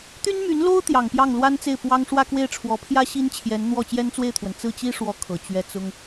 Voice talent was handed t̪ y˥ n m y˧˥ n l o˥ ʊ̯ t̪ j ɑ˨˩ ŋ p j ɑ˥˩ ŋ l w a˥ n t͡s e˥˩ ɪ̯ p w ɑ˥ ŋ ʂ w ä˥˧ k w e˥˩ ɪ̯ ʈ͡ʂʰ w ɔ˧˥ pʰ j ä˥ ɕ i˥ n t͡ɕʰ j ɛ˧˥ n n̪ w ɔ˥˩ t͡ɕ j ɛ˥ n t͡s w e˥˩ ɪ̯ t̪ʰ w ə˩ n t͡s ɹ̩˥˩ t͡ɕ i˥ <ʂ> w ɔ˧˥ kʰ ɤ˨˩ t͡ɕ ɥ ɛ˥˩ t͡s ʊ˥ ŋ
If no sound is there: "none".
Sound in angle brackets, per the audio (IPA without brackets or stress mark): ʂ